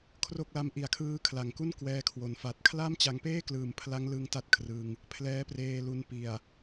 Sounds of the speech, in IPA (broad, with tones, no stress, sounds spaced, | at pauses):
kʰ r o˥˩ k̚ l a˦˥ m ʔ i˨˩ a̯ kʰ ɯː˦˥ kʰ l a˨˩ ŋ k u˥˩ n k w ɛː˧ kʰ w o˩˦ n f a˨˩ t̚ kʰ l a˥˩ m t͡ɕ a˧ ŋ p eː˥˩ k l ɯː˨˩ m pʰ l a˦˥ ŋ l ɯ˦˥ ŋ t a˦˥ t̚ kʰ r ɯ˧ ŋ | pʰ l ɛː˦˥ p r eː˧ l u˧ n p i˨˩ a̯